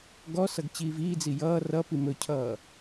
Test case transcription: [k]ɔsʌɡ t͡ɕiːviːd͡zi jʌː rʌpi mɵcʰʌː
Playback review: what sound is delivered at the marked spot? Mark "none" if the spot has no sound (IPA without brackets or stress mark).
ɡ